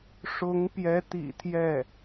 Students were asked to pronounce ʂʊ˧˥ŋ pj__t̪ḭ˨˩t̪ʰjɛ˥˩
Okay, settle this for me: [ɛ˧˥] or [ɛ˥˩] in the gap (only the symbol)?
ɛ˧˥